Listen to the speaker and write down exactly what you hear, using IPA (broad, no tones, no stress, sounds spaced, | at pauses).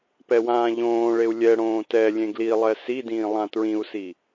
p ɛ w ãː ʎ õː ɭ e u̯ lʲ ɛ ɽ õː t ɛ lʲ ẽ ɡ l i lˠ ɛ s i d ĩː lˠ ã t ɹ ĩ u̯ s i